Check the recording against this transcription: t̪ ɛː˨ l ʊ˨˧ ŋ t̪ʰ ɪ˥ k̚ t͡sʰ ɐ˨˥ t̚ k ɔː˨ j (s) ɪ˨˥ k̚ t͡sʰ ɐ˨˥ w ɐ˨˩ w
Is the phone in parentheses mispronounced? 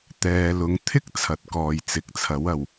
yes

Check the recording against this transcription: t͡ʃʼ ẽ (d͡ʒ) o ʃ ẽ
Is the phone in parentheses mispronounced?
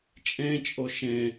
yes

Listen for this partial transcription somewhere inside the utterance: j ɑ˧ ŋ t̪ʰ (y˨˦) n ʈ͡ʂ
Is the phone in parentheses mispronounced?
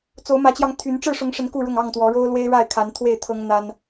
no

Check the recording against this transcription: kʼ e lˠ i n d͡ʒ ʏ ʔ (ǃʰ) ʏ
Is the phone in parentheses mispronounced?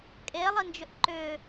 yes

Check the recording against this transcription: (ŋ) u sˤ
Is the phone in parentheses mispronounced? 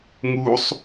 no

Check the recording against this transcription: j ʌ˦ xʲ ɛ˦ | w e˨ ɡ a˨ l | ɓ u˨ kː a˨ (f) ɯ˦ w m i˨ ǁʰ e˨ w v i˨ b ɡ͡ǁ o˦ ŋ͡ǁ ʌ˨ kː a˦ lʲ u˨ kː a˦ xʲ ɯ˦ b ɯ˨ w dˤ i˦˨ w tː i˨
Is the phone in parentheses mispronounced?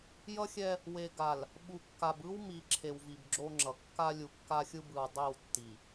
yes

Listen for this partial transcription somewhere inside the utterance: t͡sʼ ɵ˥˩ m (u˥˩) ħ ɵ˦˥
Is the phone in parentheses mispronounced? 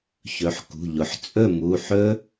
yes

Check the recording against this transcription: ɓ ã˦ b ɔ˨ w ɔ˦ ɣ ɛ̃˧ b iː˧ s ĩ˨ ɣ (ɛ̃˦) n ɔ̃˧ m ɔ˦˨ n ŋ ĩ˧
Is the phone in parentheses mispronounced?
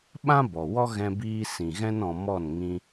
no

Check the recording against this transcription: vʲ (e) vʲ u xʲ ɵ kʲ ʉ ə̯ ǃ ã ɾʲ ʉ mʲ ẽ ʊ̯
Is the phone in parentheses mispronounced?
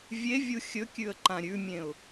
no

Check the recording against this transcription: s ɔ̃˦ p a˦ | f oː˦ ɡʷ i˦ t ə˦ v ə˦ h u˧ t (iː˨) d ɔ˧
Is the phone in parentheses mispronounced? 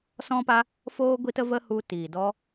no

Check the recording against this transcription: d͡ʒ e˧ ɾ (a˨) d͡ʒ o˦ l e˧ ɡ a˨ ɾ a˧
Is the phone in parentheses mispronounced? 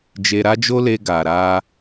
yes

